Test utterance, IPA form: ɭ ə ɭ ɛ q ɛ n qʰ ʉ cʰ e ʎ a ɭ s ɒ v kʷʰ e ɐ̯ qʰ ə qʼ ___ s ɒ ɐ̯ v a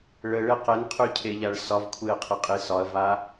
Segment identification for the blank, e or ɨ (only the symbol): e